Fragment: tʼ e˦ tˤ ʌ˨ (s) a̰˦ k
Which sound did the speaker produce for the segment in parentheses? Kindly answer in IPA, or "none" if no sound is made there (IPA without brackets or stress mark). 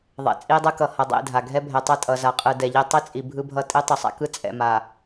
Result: sˤ